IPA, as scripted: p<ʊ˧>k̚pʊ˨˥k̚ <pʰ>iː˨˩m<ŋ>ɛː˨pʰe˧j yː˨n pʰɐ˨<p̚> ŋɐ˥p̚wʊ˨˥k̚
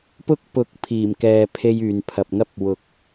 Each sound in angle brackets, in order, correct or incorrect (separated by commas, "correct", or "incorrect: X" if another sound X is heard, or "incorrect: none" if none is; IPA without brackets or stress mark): incorrect: ʊ˥, correct, incorrect: k, correct